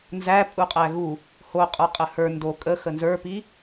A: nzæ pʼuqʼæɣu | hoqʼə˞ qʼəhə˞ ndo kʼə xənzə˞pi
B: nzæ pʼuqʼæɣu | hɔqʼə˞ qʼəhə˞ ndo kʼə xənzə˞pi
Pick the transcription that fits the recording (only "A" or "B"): A